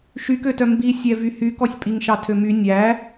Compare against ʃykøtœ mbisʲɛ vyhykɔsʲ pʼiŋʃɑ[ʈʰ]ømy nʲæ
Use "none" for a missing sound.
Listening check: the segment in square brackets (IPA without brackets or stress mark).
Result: tʰ